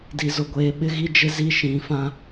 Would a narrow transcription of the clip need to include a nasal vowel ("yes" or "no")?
yes